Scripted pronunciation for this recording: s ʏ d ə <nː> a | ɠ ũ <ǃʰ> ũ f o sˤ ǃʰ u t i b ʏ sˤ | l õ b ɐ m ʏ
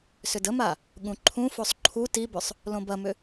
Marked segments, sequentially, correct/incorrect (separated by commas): incorrect, correct